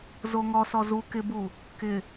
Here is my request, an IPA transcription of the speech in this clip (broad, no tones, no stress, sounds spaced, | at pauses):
z o ŋ ɔ s ɔ z u k ɪ b u | k ɪ